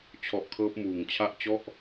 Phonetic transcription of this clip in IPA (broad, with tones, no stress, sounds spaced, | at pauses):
t͡ɕʰ ɔ˨˩ ʔ kʰ ɤː˦˥ p̚ m uː˨˩ ŋ t͡ɕʰ a˥˩ ʔ t͡ɕ ɔ˥˩ ʔ